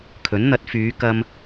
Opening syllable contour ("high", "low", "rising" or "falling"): rising